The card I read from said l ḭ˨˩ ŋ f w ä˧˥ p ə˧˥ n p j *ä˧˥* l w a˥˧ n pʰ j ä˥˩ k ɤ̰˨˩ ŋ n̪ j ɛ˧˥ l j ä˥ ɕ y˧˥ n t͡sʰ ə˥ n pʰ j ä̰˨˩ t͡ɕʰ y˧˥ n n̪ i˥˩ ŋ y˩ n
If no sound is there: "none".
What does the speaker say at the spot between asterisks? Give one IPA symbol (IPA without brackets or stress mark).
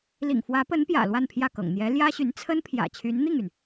ä̰˨˩